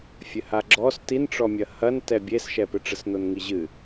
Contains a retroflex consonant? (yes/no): yes